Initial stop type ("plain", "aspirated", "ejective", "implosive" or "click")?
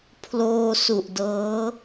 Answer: aspirated